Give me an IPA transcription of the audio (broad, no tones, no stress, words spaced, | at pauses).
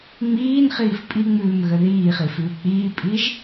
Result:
ŋ͡miːnχiːf pʼiŋ͡mʉːmɣə ðiːχifʉː k͡piːpʼiʒ